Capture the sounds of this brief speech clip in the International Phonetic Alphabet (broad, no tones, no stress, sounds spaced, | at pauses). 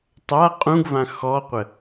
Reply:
tˤ a qʼ ũ ɡ v ã x ɔ qʷ ə